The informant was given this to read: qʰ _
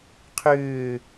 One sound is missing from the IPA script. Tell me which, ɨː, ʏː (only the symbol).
ʏː